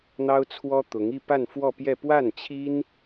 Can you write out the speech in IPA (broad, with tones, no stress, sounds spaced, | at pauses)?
n̪ ɑ˥ ʊ̯ t͡sʰ w ɔ˥ t̪ ʊ˧˥ ŋ i˥˧ p a˥˧ n f w ɔ˥˧ p j ɛ˥˧ p w a˥˩ n t͡ɕʰ i˥ n